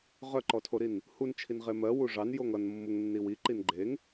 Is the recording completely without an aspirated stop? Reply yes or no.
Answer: no